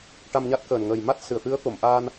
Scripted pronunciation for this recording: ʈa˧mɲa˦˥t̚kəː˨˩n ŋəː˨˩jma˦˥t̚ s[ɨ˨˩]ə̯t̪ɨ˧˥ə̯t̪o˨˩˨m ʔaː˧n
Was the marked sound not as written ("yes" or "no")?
no